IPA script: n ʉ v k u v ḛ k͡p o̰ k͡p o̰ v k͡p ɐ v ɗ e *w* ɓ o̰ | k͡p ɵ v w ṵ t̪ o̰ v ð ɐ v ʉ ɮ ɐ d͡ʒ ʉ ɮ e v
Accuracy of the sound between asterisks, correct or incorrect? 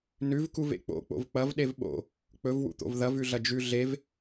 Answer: incorrect